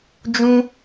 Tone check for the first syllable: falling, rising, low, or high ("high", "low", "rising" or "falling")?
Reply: high